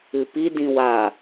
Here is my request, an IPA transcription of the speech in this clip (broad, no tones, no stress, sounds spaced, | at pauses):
ɨ p i d ĩ w a